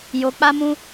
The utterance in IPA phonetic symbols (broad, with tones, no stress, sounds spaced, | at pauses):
j o˧ k͡p a˦ m ũ˦